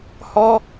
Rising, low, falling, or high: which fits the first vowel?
high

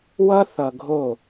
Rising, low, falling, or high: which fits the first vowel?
high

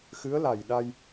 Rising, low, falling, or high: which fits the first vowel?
rising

